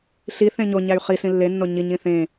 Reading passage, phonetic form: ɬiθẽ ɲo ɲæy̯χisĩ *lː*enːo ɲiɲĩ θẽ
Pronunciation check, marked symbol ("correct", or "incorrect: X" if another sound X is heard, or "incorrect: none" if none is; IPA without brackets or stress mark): correct